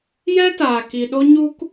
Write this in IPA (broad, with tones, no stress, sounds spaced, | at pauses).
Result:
j ɛ˦ t aː˨ k i˨ ɗ o˦ ɲ u˦ k